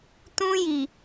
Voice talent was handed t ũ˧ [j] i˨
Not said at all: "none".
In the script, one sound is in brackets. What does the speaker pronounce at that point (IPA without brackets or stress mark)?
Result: j